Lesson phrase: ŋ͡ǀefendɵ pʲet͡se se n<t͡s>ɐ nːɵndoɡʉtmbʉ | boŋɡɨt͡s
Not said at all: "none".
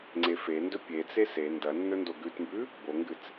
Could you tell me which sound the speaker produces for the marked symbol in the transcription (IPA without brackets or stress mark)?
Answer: d